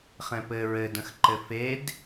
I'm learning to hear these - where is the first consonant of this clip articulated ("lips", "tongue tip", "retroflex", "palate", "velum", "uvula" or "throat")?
uvula